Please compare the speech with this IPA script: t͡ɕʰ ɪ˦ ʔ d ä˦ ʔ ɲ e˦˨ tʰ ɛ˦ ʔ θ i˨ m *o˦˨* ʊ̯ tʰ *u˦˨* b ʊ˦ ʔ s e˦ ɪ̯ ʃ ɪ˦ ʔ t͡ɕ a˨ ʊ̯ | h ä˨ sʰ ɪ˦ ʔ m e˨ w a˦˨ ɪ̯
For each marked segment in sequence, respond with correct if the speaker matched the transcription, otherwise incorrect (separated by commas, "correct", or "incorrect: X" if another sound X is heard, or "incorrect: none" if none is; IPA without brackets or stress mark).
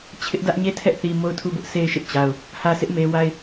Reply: correct, correct